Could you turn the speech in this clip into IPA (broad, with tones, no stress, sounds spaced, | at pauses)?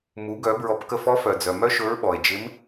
m u˩˧ ɡ œ˩˧ b ɹ ɔ˩˧ p k ə˧ f ɔ˧˥ f œ˩ d͡z œ˩ m œ˥ ʃ ɵ˧˥ ɹ ɓ ɔ˩ e̯ d͡ʒ ɪ˧˥ m